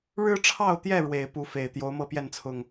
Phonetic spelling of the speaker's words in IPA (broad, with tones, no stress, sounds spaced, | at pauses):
ɻ ɻ̩˦ ʈ͡ʂʰ ɑ˥˨ ʊ̯ t̪ j ɛ˥˨ ɻ w e˨˩ ɪ̯ p u˦ f e˨˩ ɪ̯ t̪ j o˨˦ ʊ̯ m ɤ˥˨ p j ɛ˥˨ n t͡sʰ ʊ˨˩ ŋ